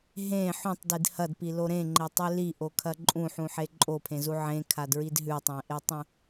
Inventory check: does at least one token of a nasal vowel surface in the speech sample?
yes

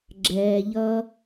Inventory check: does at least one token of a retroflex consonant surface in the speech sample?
no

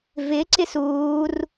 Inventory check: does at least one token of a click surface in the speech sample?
yes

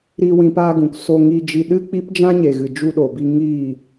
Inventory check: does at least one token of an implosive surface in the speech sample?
yes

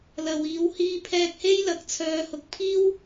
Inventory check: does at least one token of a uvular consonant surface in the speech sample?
no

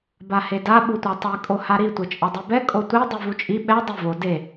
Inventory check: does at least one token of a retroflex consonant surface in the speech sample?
no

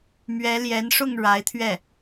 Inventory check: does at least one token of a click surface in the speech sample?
no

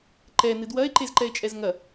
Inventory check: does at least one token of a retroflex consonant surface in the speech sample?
no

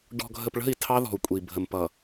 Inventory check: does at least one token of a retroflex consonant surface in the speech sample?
yes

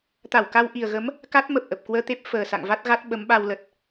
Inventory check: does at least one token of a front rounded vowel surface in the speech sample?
no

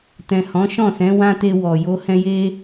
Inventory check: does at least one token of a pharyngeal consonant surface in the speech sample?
no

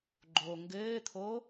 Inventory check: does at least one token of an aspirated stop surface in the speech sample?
yes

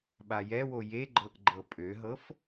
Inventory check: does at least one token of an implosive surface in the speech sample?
yes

